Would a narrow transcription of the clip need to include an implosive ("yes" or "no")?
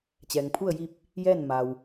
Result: no